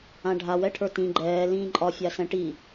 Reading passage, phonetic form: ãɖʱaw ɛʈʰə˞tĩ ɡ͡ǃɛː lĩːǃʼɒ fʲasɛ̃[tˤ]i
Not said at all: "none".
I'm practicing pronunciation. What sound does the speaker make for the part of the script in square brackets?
ʈ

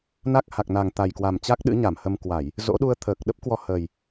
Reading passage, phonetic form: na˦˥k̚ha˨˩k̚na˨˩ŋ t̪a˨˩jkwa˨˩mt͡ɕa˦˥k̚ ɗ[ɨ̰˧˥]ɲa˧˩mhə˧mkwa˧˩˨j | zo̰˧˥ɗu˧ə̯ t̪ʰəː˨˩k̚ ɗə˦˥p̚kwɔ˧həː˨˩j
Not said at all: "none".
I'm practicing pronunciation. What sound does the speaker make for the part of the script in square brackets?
ɨ̰˧˥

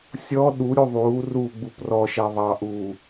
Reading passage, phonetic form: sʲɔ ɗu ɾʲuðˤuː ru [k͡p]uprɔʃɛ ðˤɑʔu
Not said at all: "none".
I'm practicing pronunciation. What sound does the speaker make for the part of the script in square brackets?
ɡ͡b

